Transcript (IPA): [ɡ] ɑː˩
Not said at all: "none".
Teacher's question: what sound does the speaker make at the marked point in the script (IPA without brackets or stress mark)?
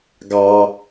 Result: ɡ